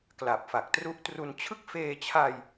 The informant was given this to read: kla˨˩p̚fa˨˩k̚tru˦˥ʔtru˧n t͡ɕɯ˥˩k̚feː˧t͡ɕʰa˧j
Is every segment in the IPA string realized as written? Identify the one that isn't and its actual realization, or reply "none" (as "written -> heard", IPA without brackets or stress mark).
t͡ɕ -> t͡ɕʰ